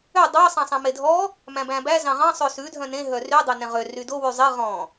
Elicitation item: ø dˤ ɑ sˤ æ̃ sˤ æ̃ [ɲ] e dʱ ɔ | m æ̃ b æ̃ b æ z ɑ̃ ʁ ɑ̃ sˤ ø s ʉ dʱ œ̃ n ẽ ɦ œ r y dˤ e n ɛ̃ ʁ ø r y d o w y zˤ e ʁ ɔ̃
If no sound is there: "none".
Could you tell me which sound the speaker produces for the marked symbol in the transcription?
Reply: m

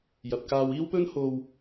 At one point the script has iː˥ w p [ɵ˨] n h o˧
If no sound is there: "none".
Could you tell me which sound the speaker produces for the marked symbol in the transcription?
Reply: ɵ˥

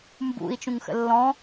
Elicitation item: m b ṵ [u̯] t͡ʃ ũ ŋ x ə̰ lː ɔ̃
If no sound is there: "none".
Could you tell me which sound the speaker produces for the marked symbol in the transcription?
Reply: i̯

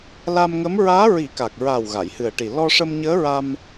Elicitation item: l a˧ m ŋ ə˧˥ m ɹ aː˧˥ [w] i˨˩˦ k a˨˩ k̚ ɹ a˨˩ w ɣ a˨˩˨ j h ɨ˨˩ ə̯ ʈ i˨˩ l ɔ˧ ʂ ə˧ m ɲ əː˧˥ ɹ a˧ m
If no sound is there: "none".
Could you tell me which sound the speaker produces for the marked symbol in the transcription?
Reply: ɹ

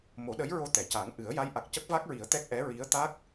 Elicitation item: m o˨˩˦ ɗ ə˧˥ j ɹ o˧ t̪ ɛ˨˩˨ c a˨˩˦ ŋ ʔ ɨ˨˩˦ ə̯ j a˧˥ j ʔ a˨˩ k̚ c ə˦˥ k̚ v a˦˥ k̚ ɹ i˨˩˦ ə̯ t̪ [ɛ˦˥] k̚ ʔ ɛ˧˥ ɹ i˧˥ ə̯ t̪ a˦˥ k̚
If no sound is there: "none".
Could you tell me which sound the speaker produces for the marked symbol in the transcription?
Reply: ɛ˦˥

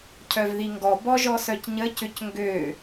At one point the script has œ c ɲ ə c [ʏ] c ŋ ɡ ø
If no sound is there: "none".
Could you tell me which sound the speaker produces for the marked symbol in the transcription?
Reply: ʏ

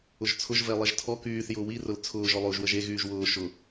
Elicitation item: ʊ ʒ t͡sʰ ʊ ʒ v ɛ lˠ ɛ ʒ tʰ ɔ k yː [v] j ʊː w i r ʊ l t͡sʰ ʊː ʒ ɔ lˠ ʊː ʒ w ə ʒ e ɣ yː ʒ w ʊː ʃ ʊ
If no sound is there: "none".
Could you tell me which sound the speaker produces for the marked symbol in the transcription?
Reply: θ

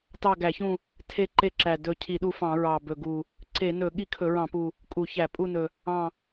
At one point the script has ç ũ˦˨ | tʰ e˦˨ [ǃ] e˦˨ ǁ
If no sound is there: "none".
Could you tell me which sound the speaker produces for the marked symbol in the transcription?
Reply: ǃ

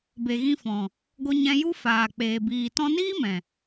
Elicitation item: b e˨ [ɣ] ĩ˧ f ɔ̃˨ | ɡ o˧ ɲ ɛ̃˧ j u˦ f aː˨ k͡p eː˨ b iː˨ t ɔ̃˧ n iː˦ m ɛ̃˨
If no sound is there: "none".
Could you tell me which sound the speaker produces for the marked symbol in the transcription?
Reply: ɣ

